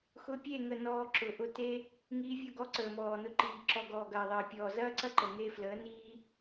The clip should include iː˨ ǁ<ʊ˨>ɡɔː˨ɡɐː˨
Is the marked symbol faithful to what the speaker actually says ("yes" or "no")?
no